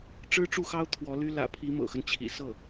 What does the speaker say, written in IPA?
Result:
ʈ͡ʂ ɻ̩˥ ʈ͡ʂ u˥˩ x ɑ˥ ʊ̯ t̪ʰ w ɔ˧˥ l y˥ l ä̰˨˩ pʰ i˧˥ m ɤ̰˨˩ x ə˦ n t͡ɕʰ ḭ˨˩ s ɤ˥˩

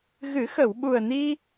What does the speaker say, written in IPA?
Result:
ɣ ɨ˨˩˦ x ə˨˩˨ w ɓ u˨˩ ə̯ n i˧

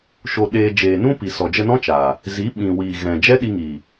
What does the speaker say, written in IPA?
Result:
ʃ o˧ ɗ eː˧ d͡ʒ eː˨ n ũ˦ p i˨ s ɔ˨ d͡ʒ ə˧ n ɔ̃˦ t͡ʃ aː˨ | z i˨˦ ɓ ĩ˨ w iː˨ ɣ ɛ̃˨ d͡ʒ ɛ˦ ɗ i˧ ŋ iː˨

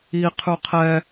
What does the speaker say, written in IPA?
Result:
i qʰ ʉ qʰ ɛ

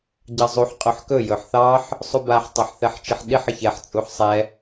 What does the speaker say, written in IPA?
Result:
ɟ ɑ zˤ u ħ qʼ ɵ ħ k ɵ j ɵ ħ θ ɑ ħ | sˤ u b a ħ tˤ ɑ ħ θ ɛ ħ t͡ʃ i ħ ɗ i ħ ə ç ɛ ħ t͡sʼ u ħ sˤ ɛ

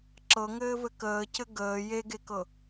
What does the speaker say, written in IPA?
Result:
ǁ ɤ ŋ ɘː v ɘ k əː c ɘ ɡ əː j e ɡ e k ɤ

